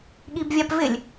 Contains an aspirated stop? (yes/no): no